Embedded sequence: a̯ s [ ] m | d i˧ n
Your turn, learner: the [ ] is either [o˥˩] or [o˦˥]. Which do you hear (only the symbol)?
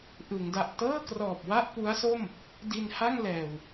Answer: o˥˩